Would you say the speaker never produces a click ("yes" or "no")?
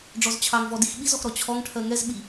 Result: yes